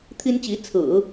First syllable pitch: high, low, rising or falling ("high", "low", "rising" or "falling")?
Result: high